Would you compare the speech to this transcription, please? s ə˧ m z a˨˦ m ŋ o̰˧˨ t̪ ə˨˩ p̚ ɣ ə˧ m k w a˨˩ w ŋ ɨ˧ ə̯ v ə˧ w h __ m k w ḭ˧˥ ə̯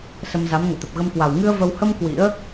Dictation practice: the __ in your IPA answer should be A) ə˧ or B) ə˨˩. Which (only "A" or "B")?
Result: A